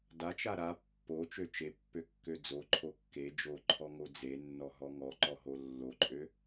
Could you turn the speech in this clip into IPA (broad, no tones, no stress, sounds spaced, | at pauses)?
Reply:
d a t͡ʃ a ɾ a pː o t͡ʃ ø t͡ʃ e pː ø kː ø d͡z o ǃʰ o kː e d͡ʒ o ǃʰ ɔ ŋ o d͡z e nː ɔ ɦ ɔ ŋ ɔ ǃ ɔ ɦ o lː o ǃʼ ø